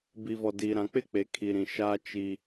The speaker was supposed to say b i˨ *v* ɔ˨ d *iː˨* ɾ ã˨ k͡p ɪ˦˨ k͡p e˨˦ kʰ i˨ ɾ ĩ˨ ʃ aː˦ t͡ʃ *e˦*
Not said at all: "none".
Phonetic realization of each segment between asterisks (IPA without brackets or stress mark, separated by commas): v, iː˨, i˦